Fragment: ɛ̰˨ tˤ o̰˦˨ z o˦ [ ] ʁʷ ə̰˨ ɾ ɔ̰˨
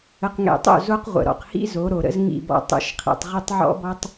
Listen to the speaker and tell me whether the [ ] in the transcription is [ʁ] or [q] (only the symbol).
q